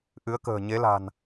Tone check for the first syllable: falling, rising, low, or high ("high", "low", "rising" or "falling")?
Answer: rising